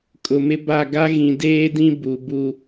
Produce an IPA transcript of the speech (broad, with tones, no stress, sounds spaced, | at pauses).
kʼ ʊ˨ m ɪ˦ b a˦˨ ɡ a˦ ɣ ĩ˨ d eː˦ d ĩ˦ b u˨ b u˦